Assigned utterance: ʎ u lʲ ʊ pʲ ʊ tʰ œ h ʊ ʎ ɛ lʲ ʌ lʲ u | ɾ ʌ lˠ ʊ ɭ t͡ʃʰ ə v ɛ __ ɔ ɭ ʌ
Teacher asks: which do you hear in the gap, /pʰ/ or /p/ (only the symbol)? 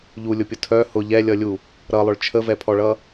pʰ